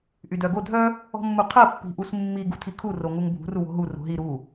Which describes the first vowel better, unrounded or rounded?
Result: rounded